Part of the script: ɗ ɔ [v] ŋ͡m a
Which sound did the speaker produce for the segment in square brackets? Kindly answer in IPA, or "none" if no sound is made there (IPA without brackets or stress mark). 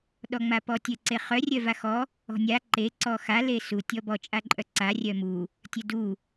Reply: none